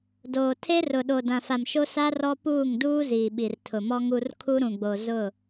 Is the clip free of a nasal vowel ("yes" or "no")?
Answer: no